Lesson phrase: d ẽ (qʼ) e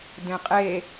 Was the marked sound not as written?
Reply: no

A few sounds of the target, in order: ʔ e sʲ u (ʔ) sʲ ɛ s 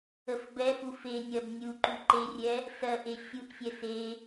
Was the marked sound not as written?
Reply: no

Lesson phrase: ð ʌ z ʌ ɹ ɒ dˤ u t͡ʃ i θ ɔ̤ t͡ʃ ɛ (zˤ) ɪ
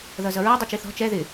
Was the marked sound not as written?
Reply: yes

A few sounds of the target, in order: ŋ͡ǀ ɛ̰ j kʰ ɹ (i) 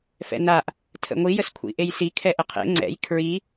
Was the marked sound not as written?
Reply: no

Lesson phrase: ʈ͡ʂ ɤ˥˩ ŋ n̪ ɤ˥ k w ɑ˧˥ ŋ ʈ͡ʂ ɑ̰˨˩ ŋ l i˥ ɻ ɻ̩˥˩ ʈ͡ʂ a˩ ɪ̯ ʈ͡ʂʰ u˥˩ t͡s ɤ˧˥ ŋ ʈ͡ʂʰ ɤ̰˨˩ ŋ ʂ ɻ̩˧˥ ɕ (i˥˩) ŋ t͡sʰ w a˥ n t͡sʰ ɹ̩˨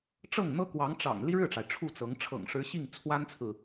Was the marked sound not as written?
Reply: no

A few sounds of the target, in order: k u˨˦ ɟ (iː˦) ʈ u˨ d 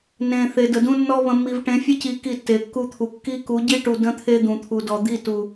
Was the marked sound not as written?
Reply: yes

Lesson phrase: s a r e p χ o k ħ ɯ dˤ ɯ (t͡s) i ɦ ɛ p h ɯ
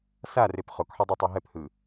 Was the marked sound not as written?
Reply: yes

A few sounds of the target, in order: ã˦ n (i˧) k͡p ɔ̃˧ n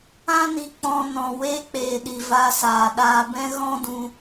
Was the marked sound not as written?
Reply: no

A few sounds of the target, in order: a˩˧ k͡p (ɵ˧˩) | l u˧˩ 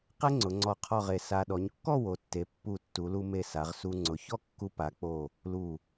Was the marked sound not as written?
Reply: yes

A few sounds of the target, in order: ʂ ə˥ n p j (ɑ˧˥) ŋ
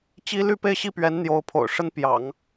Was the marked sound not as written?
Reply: yes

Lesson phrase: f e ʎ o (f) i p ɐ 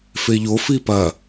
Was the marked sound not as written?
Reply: no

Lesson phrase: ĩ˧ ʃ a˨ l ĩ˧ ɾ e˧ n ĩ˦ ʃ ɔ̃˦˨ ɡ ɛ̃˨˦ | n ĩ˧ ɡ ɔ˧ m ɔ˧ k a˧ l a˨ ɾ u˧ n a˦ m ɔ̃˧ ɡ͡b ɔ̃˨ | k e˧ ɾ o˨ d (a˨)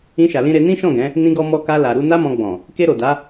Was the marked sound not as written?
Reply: yes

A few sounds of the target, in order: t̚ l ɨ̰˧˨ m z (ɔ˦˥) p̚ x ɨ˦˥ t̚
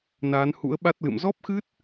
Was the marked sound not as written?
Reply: no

